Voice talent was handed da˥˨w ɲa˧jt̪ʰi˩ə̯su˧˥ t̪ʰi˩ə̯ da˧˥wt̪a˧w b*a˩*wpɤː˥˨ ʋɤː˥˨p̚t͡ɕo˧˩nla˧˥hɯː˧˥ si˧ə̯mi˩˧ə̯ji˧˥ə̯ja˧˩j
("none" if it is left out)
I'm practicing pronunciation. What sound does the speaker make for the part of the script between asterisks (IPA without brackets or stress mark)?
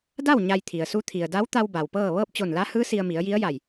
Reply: a˩